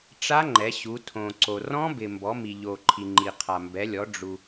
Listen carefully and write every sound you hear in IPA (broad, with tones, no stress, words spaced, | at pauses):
ʈ͡ʂa˦˥ŋ͡ǃɛ˩˧ɕu˩˧ tʰõ˩ǀo˩ rɔ̃˦˥bɪ˩ mbɔ˩˧mi˩ʎo˩ǃʰi˩ ŋ͡ǃi˩qʰa˩mbɛ˩˧lʲɔ˩˧ ɖ͡ʐu˩